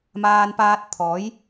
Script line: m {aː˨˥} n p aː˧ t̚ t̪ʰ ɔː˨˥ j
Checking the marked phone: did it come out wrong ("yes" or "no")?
yes